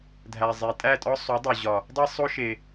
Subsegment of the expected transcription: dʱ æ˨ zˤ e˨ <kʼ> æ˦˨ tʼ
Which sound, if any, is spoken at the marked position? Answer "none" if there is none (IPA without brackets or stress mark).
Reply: tʼ